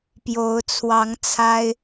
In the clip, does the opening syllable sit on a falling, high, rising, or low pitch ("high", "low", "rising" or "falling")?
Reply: rising